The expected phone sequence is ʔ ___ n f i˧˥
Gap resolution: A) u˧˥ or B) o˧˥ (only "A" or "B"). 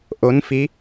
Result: B